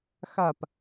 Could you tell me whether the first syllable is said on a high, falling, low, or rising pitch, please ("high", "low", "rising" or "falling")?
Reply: falling